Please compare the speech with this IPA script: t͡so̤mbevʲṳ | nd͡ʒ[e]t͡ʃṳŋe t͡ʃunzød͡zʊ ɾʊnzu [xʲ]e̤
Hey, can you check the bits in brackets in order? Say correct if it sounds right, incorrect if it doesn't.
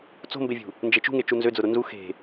correct, incorrect: x

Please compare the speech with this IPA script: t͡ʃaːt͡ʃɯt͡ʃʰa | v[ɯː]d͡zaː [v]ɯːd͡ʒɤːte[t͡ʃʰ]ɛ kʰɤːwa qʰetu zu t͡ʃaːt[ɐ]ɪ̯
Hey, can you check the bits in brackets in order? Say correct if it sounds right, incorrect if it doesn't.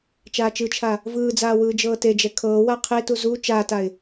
correct, incorrect: w, incorrect: d͡ʒ, incorrect: a

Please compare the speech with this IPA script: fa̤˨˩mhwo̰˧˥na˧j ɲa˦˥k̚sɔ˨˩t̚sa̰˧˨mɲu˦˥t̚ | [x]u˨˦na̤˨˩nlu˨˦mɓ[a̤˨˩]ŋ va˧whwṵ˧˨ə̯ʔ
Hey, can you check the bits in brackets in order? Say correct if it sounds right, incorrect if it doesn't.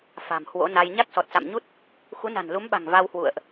correct, correct

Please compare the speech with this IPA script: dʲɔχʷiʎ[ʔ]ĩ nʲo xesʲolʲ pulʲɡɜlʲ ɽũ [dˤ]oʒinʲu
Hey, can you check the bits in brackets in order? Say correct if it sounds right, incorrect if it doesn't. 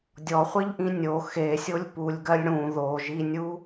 correct, incorrect: ð

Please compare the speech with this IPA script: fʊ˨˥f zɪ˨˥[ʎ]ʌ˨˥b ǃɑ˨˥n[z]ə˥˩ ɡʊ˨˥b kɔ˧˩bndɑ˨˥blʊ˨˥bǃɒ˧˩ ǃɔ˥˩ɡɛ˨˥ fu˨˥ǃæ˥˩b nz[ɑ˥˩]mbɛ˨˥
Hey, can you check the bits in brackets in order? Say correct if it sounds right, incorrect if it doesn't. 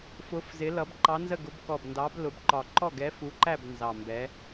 incorrect: l, correct, incorrect: ɑ˧˩

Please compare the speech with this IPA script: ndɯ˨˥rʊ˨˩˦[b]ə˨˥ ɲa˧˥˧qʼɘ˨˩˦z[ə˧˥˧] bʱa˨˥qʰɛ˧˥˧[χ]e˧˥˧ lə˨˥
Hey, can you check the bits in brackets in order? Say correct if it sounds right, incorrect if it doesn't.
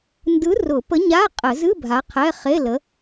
incorrect: p, incorrect: ɨ˧˥˧, correct

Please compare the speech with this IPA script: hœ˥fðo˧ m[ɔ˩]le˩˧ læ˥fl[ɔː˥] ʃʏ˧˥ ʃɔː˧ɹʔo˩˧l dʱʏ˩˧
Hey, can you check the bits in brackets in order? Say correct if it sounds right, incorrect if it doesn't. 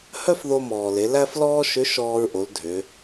incorrect: ɔː˩, correct

